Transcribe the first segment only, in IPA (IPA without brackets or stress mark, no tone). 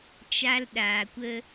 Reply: t͡ʃ